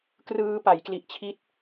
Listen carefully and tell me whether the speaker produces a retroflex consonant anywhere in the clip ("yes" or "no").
no